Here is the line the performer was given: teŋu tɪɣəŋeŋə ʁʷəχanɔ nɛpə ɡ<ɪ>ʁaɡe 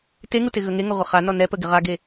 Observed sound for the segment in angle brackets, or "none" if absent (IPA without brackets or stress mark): ɪ